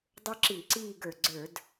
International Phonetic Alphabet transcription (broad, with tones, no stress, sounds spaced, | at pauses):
dˤ ə˞˦ ǁ i˧˩˧ ǀ iː˦˨ ɡ ə˞˩ ɡ͡ǀ ə˞˧˩˧ d